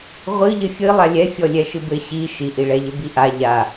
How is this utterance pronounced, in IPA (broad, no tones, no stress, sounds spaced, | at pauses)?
ʁʷ ɨ ʎ ɘ fʲ ɨ lˠ a lʲ ɛ fʲ ɔ lʲ ɛ ʃ ɨ b ɘ ɕ i ʃ i ʔ i ɭ ɛ ʎ ɘ b i ʔ a ʎ a